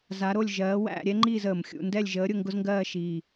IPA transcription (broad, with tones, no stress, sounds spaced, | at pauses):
z a˧˥ ɾ o˥˧ lʲ ʒ ɜː˧˥ w æ̰˥˧ ɾʲ ɛ˥ ŋ͡ǃ iː˥˧ z əː˨˩ m xʲ ṵ˥˧ n d ɛ˥˧ lʲ ʒ əː˧˥ ɾʲ ʊ˥˧ ŋ ɡ ʊ˥ z ŋ ɡ ɜː˥˧ ʃ iː˨˩